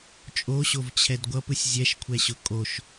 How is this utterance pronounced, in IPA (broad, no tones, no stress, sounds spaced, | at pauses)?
t͡ʃʼ o ɕ o v t͡ɕʰ ɛ d ɡʷ ʌ p ɯ sʲ zʲ ɛ ʃ kʷʰ ɛ ɕ ʊ kʼ o ʃ